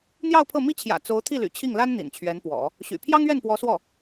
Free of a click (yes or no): yes